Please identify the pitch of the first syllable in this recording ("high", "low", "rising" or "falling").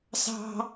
high